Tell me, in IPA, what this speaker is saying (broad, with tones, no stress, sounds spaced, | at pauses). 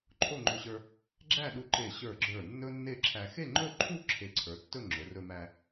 ǃʰ o˥˧ ŋ͡ǃ ɵ˧ ɕ ə˞˧ | ɡ͡ǁ æ˥˧ ɗ u˧ ǃ e˧˩ ɕ ə˞˧˩ ɡ͡ǁ ə˞˧˩ nː ɵ˥ nː e˥˧ ǁʰ æ˧ x e˥˧ ŋ͡ǃ ɵ˥˧ ǃʰ u˥˧ ǁʰ e˧˩ ǀʰ ə˞˩˧ tː ɵ˥˧ ŋ͡ǁ ɵ˩˧ r ɵ˧ m æ˧